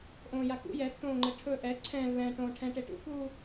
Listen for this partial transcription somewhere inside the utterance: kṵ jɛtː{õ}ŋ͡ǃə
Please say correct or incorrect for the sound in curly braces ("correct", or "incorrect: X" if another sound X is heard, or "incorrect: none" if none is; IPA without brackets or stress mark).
incorrect: õː